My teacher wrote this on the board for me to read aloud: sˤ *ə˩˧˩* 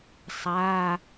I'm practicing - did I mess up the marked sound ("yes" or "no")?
yes